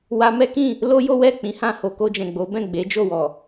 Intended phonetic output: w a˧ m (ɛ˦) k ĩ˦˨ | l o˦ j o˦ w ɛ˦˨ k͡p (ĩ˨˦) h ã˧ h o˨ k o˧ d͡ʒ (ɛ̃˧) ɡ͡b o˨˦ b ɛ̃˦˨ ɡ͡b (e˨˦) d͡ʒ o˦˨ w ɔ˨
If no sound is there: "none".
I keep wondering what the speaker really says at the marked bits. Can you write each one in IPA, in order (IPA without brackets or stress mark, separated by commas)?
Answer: ɛ˦, ĩ˨˦, ɛ̃˨, e˨˦